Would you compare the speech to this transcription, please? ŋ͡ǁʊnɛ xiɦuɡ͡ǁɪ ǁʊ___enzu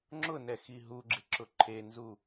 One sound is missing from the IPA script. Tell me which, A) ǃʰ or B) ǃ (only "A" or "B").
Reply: A